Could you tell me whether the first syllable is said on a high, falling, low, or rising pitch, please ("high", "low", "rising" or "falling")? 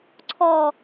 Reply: falling